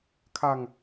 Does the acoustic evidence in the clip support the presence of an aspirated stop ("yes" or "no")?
yes